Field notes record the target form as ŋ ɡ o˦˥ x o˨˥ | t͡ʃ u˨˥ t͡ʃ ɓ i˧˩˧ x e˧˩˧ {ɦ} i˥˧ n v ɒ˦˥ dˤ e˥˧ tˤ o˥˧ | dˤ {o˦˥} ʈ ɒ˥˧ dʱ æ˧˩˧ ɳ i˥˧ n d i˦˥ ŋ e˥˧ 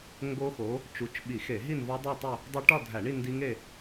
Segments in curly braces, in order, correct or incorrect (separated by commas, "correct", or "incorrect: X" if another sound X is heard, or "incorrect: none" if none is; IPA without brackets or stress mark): correct, correct